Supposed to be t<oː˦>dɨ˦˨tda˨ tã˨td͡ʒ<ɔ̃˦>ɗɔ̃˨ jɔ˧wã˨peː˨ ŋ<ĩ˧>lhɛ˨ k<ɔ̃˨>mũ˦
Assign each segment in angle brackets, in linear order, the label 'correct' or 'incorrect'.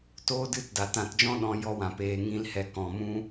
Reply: correct, correct, correct, correct

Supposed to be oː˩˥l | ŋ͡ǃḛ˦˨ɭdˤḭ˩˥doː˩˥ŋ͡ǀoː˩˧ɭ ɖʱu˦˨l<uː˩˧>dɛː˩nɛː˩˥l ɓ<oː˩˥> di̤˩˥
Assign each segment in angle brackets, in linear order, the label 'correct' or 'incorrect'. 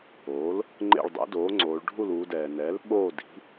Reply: correct, incorrect

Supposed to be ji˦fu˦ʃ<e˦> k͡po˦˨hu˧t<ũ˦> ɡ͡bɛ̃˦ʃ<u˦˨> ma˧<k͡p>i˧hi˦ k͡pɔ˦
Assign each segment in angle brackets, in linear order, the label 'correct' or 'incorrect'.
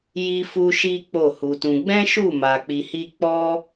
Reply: incorrect, incorrect, correct, correct

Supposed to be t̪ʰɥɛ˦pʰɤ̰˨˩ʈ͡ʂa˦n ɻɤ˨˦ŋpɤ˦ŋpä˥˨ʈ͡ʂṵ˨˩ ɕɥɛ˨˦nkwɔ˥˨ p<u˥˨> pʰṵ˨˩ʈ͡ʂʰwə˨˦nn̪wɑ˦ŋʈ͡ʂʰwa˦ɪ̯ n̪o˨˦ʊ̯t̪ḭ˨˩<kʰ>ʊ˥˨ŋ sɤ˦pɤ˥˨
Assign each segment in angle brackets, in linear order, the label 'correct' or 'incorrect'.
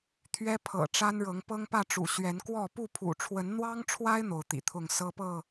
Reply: correct, incorrect

